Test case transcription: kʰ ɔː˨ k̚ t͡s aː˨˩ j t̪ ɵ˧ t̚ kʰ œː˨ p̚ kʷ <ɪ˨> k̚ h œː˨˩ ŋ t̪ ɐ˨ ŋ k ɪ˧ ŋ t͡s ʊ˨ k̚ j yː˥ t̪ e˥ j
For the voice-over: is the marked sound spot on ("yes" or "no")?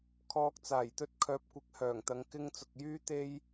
yes